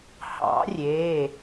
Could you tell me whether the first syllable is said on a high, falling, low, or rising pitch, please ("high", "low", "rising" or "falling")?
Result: rising